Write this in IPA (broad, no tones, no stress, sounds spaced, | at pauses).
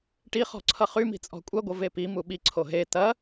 ʈ i χ ɔ̤ ǀʰ ʌ χ y m i̤ t͡sʼ ɔ̤ kʷʼ ɐ ɡʷ ʌ v e p i m u ɓ i ǀʰ o ɦ e t ɐ